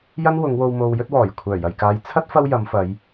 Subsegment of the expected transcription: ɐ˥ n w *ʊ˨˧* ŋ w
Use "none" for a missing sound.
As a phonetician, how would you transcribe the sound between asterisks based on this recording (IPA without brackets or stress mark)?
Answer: ʊ˨˧